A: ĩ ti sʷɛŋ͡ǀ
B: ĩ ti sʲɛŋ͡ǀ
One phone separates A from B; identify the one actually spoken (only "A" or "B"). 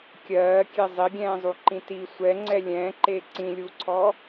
A